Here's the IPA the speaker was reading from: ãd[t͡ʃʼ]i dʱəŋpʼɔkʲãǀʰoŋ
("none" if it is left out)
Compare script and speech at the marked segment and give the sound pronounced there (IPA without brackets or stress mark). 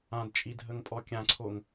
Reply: t͡ʃʼ